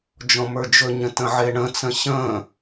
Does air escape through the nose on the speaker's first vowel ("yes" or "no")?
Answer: yes